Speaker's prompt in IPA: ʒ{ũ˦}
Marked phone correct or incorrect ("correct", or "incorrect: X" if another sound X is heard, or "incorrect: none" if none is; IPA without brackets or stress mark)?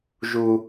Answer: incorrect: u˦